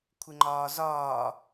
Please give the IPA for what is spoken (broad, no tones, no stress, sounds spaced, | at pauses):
kʷʰ ɪ ŋ͡ǃ ɒː z ɒː